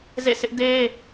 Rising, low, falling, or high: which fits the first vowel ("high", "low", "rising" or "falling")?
falling